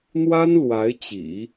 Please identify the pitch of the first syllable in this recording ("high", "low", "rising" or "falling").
high